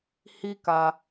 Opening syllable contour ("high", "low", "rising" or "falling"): high